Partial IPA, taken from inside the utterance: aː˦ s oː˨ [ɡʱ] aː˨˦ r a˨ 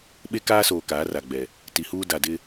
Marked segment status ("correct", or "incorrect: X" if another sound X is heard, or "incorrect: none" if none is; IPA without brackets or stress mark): incorrect: k